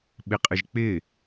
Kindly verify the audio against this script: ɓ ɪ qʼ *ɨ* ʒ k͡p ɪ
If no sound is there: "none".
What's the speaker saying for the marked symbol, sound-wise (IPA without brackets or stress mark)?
ɨ